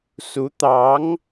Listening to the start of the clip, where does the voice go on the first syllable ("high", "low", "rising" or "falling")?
rising